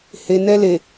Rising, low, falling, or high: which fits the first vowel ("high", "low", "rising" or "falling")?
low